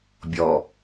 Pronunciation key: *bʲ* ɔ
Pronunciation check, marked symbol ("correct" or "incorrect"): correct